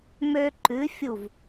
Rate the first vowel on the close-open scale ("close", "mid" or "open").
mid